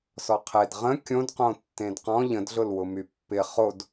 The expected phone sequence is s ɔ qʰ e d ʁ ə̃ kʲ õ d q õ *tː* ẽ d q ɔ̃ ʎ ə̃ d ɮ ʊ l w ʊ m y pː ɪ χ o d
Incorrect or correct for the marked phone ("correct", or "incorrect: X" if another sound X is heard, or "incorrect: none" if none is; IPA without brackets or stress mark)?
correct